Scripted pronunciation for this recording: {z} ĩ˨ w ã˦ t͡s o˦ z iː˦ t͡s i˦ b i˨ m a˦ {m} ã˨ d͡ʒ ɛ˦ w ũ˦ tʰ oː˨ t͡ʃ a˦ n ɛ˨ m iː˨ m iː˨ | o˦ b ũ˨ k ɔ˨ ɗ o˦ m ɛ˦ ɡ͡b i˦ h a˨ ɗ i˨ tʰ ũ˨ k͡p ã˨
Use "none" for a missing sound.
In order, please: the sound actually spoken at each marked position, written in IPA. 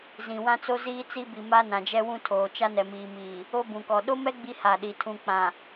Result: z, n

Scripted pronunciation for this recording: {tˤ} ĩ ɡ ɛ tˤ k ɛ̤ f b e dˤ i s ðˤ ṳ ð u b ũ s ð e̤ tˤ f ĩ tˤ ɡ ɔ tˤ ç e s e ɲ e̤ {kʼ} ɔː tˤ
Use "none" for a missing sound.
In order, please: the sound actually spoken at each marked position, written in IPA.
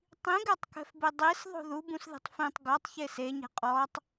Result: tˤ, qʼ

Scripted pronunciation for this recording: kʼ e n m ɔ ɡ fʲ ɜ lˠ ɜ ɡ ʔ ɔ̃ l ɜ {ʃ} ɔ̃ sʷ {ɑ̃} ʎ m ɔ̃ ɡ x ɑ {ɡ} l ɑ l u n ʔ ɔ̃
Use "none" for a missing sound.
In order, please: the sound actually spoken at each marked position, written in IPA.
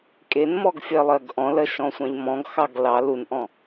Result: ʃ, ɑ̃, ɡ

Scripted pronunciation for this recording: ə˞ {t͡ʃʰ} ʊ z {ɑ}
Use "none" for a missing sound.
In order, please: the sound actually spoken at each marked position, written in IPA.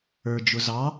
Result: d͡ʒ, ɑ

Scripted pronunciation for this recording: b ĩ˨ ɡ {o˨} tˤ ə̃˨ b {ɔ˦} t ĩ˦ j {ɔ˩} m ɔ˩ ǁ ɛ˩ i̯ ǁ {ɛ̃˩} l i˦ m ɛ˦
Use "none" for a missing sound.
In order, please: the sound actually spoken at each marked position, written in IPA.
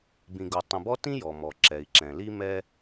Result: o˨, ɔ˦, ɔ˩, ɛ̃˩

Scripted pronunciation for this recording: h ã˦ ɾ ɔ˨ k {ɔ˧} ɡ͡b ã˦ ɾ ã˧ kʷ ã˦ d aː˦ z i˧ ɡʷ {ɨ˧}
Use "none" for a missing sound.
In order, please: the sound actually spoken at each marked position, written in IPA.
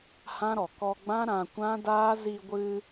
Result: ɔ˧, ɨ˧

